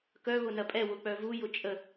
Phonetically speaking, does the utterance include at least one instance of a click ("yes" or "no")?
no